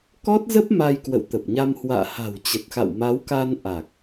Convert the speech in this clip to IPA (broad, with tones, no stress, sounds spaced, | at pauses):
k ɔ˦˥ t̚ z ə˦˥ p̚ m a˧ j k w ə̰˧˨ w t̪ ə˨˩ p̚ ɲ a˧ m h w a̰ː˧˨ h a̤˨˩ w t͡ɕ ə˨˩ t̚ x a̰˧˨ w m a˨˦ w k a˧ n ʔ a˨˩ k̚